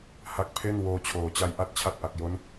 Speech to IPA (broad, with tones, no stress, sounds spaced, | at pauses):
h a˦˥ k̚ pʰ e˥˩ n w oː˧ t͡ɕʰ oː˨˩ t͡ɕ a˦˥ j ʔ a˦˥ t̚ t͡ɕʰ a˦˥ t̚ ʔ a˨˩ k̚ j o˦˥ n